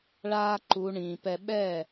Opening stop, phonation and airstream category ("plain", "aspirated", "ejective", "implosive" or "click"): click